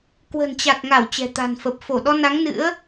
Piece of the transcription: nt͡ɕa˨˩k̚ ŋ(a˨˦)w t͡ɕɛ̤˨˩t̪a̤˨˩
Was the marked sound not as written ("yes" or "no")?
yes